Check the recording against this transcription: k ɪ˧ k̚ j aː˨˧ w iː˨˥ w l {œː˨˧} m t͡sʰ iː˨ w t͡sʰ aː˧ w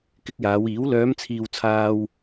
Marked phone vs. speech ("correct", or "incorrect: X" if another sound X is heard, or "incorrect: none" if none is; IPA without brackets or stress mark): correct